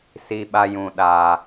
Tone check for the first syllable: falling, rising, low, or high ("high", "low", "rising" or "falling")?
high